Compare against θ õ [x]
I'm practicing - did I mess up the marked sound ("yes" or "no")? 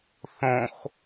no